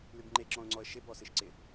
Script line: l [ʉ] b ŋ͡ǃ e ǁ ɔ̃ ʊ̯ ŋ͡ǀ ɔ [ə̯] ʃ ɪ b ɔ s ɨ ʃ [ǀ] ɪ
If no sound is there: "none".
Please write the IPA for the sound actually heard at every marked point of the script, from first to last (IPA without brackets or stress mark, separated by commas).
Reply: ʉ, ə̯, ǀ